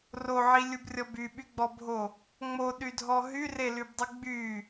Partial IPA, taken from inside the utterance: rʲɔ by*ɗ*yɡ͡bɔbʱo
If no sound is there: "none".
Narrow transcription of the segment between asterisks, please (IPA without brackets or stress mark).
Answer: ɓ